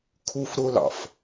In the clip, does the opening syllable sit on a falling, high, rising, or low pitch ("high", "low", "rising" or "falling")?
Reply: high